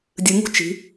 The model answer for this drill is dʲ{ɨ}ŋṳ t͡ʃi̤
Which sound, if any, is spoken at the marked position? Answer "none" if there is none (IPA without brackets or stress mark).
ɨ